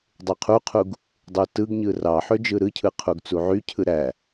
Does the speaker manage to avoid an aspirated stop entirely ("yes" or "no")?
no